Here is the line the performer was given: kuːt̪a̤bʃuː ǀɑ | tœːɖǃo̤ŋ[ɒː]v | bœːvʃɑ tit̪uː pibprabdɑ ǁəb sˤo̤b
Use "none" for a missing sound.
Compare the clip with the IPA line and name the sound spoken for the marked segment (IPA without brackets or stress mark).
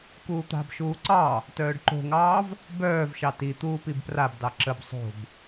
ɑː